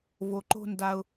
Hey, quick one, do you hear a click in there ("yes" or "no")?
yes